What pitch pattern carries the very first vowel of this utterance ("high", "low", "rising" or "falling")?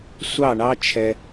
falling